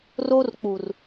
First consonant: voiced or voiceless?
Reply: voiced